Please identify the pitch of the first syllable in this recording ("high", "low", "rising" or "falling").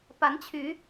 rising